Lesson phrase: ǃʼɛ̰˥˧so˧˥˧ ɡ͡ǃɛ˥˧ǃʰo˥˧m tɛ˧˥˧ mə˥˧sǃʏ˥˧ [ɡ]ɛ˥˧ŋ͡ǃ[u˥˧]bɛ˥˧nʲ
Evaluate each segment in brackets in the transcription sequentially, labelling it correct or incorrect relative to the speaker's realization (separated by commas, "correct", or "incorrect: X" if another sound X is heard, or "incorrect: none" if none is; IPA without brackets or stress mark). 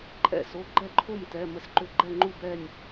incorrect: ɡ͡ǃ, correct